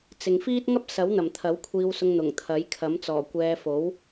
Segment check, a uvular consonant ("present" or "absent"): absent